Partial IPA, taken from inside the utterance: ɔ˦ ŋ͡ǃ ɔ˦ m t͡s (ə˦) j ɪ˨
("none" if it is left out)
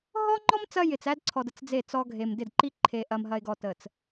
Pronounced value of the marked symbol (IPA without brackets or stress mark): ɐ˦